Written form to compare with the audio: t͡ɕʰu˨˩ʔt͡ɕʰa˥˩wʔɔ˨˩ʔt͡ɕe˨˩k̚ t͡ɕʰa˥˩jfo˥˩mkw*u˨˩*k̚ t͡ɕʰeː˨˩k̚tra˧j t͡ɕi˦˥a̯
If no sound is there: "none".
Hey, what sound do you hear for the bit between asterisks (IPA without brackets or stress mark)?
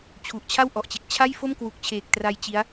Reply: u˨˩